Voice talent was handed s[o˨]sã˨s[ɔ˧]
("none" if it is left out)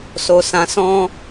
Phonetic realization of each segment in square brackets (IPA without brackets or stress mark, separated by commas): o˨, ɔ̃˧